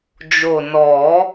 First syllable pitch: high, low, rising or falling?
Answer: low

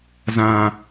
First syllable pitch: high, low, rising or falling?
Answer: low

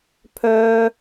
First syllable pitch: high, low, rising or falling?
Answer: high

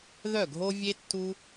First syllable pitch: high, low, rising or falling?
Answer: falling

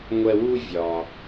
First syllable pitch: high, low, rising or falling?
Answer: high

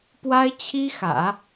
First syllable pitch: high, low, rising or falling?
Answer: high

